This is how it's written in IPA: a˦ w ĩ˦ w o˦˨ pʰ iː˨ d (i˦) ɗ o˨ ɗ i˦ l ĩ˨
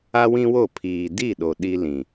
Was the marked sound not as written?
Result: yes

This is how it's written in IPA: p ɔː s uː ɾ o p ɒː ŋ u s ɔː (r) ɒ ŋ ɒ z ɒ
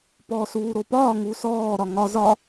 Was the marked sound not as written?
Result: yes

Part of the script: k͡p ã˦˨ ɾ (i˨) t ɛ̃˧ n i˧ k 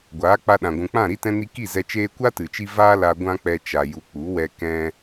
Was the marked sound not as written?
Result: yes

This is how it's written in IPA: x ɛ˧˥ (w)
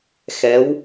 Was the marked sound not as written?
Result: no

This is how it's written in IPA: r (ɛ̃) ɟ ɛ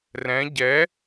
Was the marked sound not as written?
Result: no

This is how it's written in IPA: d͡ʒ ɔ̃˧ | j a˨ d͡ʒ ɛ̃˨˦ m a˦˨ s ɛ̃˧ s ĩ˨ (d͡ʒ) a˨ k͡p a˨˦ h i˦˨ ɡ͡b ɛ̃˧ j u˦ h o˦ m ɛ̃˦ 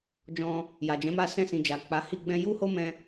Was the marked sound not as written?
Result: no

